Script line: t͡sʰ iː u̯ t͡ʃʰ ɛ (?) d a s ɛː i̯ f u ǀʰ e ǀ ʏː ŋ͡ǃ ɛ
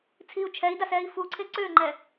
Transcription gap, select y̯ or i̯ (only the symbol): i̯